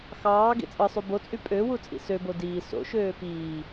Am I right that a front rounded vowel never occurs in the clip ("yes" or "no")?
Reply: no